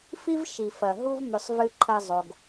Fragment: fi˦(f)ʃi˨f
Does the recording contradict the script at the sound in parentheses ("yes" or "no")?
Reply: yes